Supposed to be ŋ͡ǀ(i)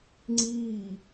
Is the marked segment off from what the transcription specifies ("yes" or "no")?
yes